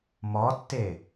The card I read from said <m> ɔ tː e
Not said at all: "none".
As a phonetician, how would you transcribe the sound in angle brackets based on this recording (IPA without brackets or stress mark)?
m